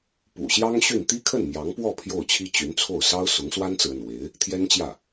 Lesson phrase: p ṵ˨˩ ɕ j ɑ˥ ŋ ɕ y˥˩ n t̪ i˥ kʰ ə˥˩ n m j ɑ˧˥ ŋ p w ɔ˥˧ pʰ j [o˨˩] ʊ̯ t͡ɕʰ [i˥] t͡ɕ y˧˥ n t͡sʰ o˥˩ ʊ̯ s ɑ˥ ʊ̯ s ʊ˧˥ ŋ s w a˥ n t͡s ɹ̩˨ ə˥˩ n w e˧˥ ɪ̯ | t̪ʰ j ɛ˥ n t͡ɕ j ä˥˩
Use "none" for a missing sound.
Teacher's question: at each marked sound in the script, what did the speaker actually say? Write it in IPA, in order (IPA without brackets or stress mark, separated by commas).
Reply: o˥˩, i˥